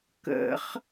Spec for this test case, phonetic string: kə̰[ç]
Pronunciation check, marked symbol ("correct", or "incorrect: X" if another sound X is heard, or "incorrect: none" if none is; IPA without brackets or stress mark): incorrect: χ